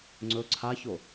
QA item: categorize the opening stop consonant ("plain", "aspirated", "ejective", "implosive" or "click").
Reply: click